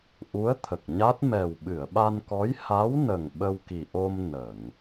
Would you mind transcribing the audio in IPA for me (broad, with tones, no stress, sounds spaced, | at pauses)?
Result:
ʔ u˧˥ ə̯ t̪ʰ ə˨˩ k̚ ɲ a˦˥ t̚ m ɛ˨˩ w ɓ ɨ˨˩˨ ə̯ ɓ a˧ n k ɔ˧˥ j h a˧˥ w n ə˨˩ ŋ ɓ ə˧ w k i˨˩ ʔ o˧ m n ə˨˩˨ ŋ